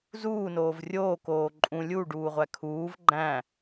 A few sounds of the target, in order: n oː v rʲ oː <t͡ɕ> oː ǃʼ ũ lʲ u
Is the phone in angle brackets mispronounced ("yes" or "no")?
yes